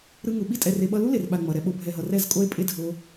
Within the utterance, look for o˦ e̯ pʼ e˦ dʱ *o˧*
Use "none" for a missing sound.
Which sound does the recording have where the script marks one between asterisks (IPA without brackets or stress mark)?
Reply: o˧